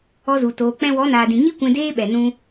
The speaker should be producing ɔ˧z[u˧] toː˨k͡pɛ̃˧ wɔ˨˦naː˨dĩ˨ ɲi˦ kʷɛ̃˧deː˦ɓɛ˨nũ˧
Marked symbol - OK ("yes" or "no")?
no